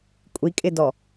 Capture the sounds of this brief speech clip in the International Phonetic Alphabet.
kʷʼikʼɪdɔ

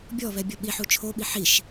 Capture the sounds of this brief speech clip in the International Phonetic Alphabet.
bʲɔβɛbʲɔ ɓiħu t͡ʃʰoɓi ħiʃ

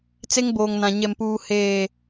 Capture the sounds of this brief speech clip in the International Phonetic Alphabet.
t͡se˦ŋboː˨ŋnã˨ ɲɛ˨mpuː˨ heː˨

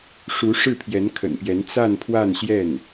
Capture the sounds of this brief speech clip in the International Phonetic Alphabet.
ʂu˧˥ ʂɻ̩˥˩pʰjɛ˧˥nkʰə̰˨˩npjɛ˧˥n t͡sa˥˧npʰwa˥˧nɕjɛ˥˩n

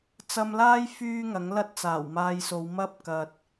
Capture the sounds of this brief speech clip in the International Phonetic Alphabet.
t͡sɐ˧mlaː˥j fyː˥ŋɐ˨˥ŋ lɐ˥t̚t͡saː˨˩wmaː˧jso˨˧w mɐ˥p̚kɐ˨t̚

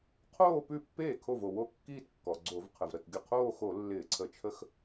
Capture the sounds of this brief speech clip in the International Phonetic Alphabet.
qʰoː˥˧pʉ˥˩pːeː˥˩ kʰo˥˩vo˩wo˥˧ kːiː˥˧tkːɔ˩ɡ͡ǀo˧˩˧v qʰə˩vɾə˥˩tɡʲə˥˩ qʰoː˥˧xo˧˩˧ lːɪː˧˩˧ǀʰə˧˩˧t͡ʃʰə˥˧x

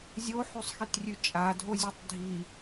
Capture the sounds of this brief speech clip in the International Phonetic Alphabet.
zʲoħʉsˤxitrʲʉ t͡ʃʼadʱozʲʉtˤ dʱi

